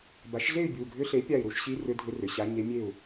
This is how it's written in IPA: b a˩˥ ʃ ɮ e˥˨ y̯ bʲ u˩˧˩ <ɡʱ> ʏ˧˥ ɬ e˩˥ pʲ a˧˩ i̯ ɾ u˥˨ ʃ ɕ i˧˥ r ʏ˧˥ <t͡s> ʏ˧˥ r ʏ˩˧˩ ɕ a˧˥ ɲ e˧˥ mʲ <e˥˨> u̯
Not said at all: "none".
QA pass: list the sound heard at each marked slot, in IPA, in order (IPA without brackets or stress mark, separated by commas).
ɡʱ, dʱ, e˥˨